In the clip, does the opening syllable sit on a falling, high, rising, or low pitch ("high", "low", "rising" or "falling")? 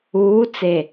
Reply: rising